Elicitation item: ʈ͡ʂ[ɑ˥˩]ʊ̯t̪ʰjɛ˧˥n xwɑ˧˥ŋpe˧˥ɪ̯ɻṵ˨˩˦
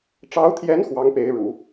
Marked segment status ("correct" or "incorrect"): incorrect